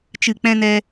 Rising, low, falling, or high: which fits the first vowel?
low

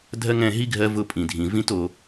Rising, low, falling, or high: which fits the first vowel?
high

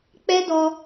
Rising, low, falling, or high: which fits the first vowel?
high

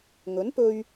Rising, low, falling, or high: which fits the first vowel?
rising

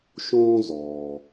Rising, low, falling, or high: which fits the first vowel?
high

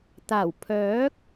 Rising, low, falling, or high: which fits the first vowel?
low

